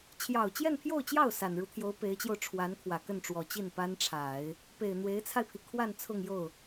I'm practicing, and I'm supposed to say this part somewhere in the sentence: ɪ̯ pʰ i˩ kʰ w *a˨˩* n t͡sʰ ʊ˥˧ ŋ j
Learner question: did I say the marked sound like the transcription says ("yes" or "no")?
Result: no